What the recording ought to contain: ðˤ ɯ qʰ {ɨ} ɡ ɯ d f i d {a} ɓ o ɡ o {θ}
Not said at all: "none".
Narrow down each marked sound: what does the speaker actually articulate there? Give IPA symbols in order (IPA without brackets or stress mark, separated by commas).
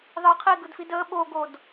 i, ə, d